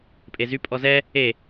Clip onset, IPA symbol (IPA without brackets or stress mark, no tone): pʼ